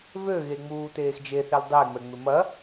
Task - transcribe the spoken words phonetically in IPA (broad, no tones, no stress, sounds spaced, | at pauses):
v ø ɣ e ŋ͡m uː t̪ eː x d͡ʒ e θ e l dˤ e ŋ͡m ɛ ŋ͡m ɪ m ɐ